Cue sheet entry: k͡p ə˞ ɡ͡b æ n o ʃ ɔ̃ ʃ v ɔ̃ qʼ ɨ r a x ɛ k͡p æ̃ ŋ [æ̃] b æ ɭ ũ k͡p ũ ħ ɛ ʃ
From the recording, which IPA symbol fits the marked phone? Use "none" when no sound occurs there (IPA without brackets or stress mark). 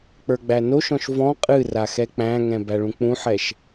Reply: ɛ̃